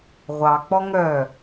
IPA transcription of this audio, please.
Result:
ʁʷ ɑ k͡p ɔ ŋ œ

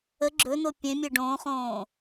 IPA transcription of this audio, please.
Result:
ə ɡ͡ǁ ɵ n o pʲ ẽ mʲ e ɖ õː χ õː

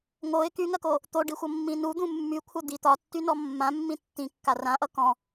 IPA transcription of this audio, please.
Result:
ŋ o ɪ̯ k y ŋ ɜ k o | t̪ o ɖ i xʷ ʌ mː ĩ n u d̪ ũ mː y kʷʰ ʌ d̪ i t̪ ɒ tː y n ɔ mː ã mː ĩ tː ĩ kː a r ã ʔ ʌ k ɔ̃

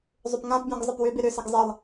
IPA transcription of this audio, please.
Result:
zˤ ʏ p ŋ ã p bʲ ɔ̃ ɡ zˤ ɪ p w ʏ b ɪ ɾ ʏ s ɪ ɡ zˤ ɪ lˠ

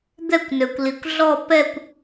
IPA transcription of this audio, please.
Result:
d̪ ɛ˥˨ kʷ n ø˩ kʷ l i˩ kʷ ɮ ɔ˥˨ p ɛ˥˨ kʷ

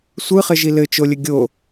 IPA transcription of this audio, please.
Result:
sʷ ɯ χ ɘ ʒ i l ɘ t͡ʃ o lʲ ɘ ɡʲ o

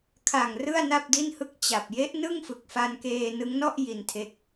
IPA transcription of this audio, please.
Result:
kʰ a˨˩ ŋ r ɯ˥˩ a̯ n a˥˩ p̚ d i˥˩ n h ɯ˥˩ k̚ t͡ɕ a˨˩ p̚ j e˦˥ ʔ n ɯ˥˩ ŋ f ɯ˨˩ k̚ f a˧ n k eː˧ n ɯ˦˥ ŋ n ɔ˥˩ ʔ j i˧ n tʰ e˦˥ k̚

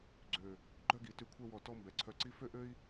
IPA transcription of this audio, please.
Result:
ɡ͡ǀ ø˧˩ | ɡ͡ǃ œ˥˧ ɡ i˩˧ t y˧ kʷʰ ɛ˥˧ w ɔ˧˩ t ɔ˥˧ m b ɛ˩˧ ǀʰ œ˧ ǀ i˥ f ø˥ ʔ ø˥ i̯

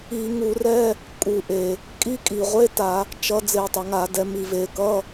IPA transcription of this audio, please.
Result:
i˧˩˧ ŋ u˧˩˧ r ɛ˧˥˧ | kʼ u˧˩˧ ʔ e˨˩ | kʼ i˧˥˧ kʼ i˨˩ ʁʷ e˧˥˧ t a˧˩˧ | t͡ʃ ʌ˩˧ d͡z e˧˩˧ tˤ ʌ˨˩ ŋ a˧˩˧ d ɛ˩˧ m i˨˩ v e˧˩˧ k ʌ˧˥˧

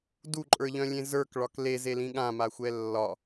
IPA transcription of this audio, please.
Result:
d u ǃʼ ə˞ ʎ œ̃ lʲ ẽ z ə˞ k ɭ ɒ k l e z e l ĩ ɠ ã m a xʷ ɛ lː ɒ

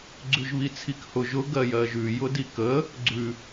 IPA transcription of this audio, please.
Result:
ɡ͡ǀ ʉ ʒ β i t͡sʰ i k h ʊ ʒ ʊ ɡ ɜ j ɜ ʒ ʉ j ʊ d i k ə | ɡ͡ǀ ʉ

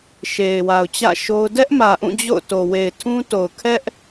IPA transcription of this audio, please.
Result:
ʃ e˨ ɪ̯ w a˨ ʊ̯ t͡ɕ ä̰˦˨ ʃ o˦ ʊ̯ d ɛ˦ ʔ m ä˨ ʔ ũ˦˨ d͡ʑ o̰˦˨ ʊ̯ t o˨ w e˨ ɪ̯ tʰ ũ˦ t o˨ ʊ̯ kʰ ɛ˦ ʔ

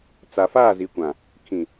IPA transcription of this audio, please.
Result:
t͡s a˨ f aː˦˨ z i˨ kʷ ã˨ | kʰ ĩ˨

